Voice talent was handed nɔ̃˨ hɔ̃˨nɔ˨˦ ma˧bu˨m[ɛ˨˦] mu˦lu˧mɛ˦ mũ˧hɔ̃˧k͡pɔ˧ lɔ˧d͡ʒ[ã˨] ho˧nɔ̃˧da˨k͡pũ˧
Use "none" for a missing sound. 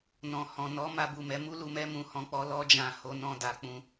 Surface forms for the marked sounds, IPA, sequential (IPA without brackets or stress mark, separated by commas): ɛ˨˦, ã˨